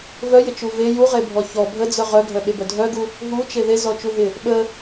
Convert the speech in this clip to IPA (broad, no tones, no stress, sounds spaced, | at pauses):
v œ j ɪ t͡ʃ u v e j u ʁ e bʱ ɔ ç ɔ bʱ ə d͡z œ ʁ œ ɡʱ œ ɓ e b œ dʱ œ ɡ u | ɦ u t͡ʃ e ð e z ɔ t͡ʃ u ɦ ɪ | ɓ ə